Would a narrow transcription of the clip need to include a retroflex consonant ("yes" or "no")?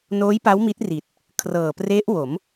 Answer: no